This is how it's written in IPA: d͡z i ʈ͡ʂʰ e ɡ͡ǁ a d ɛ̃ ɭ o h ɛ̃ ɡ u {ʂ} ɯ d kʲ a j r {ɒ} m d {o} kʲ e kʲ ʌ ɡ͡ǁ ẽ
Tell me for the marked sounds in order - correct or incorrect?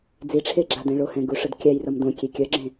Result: correct, incorrect: ʌ, incorrect: õ

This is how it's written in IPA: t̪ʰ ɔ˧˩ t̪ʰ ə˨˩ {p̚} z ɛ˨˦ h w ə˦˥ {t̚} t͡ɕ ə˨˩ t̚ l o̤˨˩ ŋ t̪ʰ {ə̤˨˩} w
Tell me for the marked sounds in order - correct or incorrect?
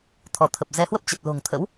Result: correct, incorrect: p̚, incorrect: ə̰˧˥

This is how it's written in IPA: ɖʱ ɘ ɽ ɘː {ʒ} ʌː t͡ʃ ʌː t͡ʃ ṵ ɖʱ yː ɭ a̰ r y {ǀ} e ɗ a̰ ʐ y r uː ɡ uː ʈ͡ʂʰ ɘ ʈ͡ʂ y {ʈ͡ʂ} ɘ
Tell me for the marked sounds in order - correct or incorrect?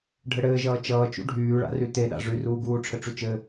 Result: correct, incorrect: t, incorrect: t͡ʃ

